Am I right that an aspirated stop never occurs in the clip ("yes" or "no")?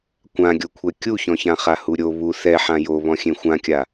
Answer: no